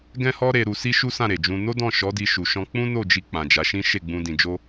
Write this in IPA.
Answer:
ɡ ɛ̃˦ h ɔ˦ ɾ e˧ ɾ u˧ s i˦ ʃ u˦ s ã˦˨ ɾ e˨ d͡ʒ ũ˧ n o˦ d ɔ̃˦˨ ʃ ɔ˨˦ d i˧ ʃ u˨ ʃ ɔ̃˧ k͡p ũ˦ n o˦˨ d͡ʒ i˧ k͡p ã˨ d͡ʒ a˨˦ ʃ ĩ˦ ʃ e˦˨ ɡ͡b ũ˧ d ĩ˨ d͡ʒ o˧

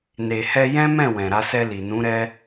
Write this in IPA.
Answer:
n e˨ h ɛ˧ j ɛ̃˦ m ɛ̃˦˨ w ɛ̃˨ ɾ a˧ s ɛ˧ l i˨ n ũ˨˦ ɾ ɛ˦

